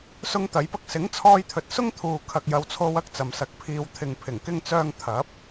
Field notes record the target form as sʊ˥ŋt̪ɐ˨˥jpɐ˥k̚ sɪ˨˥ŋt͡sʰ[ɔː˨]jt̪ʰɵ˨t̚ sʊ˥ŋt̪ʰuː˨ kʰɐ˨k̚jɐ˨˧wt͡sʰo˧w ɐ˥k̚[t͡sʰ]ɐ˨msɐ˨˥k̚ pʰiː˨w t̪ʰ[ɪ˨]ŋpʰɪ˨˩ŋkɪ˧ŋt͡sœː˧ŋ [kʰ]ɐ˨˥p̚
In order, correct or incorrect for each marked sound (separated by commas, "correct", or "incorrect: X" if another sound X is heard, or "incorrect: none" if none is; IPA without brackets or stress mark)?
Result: incorrect: ɔː˧, incorrect: t͡s, correct, incorrect: t̪ʰ